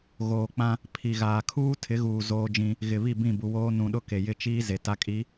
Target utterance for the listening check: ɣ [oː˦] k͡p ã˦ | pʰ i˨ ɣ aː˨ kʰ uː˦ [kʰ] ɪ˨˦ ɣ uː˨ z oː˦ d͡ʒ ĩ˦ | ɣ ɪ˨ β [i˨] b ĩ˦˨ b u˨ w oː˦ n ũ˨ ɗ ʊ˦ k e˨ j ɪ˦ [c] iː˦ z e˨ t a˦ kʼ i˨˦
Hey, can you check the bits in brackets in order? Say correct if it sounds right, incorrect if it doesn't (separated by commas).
incorrect, incorrect, incorrect, incorrect